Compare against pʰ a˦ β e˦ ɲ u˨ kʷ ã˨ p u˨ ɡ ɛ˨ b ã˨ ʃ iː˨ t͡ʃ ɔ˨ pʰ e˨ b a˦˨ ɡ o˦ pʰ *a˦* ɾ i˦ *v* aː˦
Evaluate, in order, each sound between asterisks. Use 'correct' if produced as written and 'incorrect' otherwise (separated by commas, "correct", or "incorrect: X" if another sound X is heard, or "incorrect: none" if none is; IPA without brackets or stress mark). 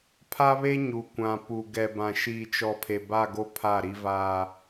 incorrect: a˦˨, correct